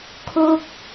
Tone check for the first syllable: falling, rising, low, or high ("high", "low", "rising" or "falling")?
falling